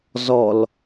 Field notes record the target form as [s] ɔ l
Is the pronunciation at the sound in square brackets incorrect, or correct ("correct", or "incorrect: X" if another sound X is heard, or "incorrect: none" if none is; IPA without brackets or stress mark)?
incorrect: z